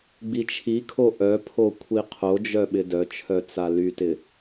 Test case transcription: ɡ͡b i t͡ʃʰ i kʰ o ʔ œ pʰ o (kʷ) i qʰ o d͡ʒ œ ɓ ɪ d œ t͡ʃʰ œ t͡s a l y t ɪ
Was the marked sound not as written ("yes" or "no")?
yes